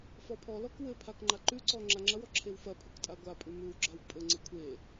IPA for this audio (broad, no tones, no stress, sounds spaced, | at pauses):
f ɔ pʰ ɔ l ɔ k w ɘ pʰ a k ŋ͡ǃ a ǃ ʉ ǀ ɔ ŋ͡ǁ a ŋ͡ǁ ɐ w ɔ ǁʰ e w f ɐ pʰ ʉ k tʼ a ɡʷ a pʼ ʉ m ʉ w ɡ͡ǁ a w pʼ ɘ ŋ͡ǀ ɘ kʷʰ e